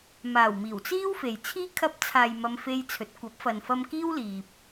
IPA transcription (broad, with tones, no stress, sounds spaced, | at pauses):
m aː˨˩ w m iː˨˩ w t͡s iː˥ w f e˨ j t͡sʰ iː˥ kʰ ɐ˧ p̚ t͡sʰ aː˨ j m ɐ˧ m f e˧ j t͡sʰ ɵ˨˥ t̚ kʷ ɐ˨˥ p̚ f ɐ˨ n f ɐ˧ m k iː˥ w l iː˨ p̚